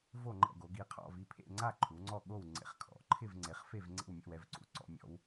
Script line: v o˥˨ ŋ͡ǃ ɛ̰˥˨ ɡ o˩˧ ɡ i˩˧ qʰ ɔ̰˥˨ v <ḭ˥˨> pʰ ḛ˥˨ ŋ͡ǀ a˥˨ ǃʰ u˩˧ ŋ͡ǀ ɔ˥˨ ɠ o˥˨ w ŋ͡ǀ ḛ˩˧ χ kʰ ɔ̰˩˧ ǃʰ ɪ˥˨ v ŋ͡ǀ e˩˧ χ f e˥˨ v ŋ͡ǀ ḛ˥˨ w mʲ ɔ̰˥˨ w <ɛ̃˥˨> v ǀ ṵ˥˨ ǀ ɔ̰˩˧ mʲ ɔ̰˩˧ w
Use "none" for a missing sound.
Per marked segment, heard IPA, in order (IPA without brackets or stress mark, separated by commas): i˥˨, ɛ˥˨